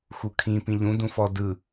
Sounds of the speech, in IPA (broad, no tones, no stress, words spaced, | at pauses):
xukʰĩ pĩʎũ dũfɔ dɯ